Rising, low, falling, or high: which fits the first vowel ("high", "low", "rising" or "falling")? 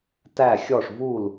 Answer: falling